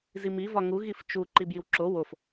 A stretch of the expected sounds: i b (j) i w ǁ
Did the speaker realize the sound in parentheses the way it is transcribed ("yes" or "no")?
yes